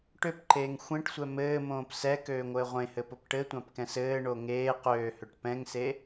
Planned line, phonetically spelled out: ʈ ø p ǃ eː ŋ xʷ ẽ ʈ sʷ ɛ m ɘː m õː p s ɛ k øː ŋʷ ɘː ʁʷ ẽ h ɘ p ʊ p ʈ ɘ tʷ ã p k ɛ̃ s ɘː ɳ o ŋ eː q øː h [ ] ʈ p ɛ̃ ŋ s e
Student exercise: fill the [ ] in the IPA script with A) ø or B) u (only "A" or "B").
A